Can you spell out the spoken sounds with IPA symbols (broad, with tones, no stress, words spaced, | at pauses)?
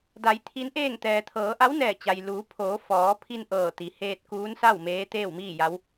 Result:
da˩˧j t̪ʰi˧˥nʔeː˥˨ŋ t̪ɛː˩t̪ʰɤː˩˧ʔa˧˥wnɛː˧˩ t͡ɕa˩jluː˩˧ pʰoː˩˧fɔː˩˧pʰi˧n ʔɤː˧˩t̪i˩ heː˧t̚kuː˧˥nsa˥˨w meː˧˥t̪eː˥˨wmiː˥˨ ja˧˥w